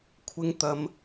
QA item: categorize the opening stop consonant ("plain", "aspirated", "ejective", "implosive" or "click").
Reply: aspirated